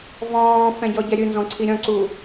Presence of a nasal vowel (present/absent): present